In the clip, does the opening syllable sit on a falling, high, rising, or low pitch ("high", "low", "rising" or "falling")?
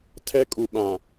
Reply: high